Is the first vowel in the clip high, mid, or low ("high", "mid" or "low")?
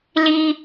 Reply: high